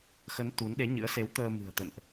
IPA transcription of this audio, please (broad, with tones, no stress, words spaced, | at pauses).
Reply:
xə˨˦n t̪u˨˦n ɗe˨˦ɲɨ̰˧˥ə̯se˨˦w t̪əː˧ mɨ̤˨˩ə̯t̪ə̰˧˨nʔ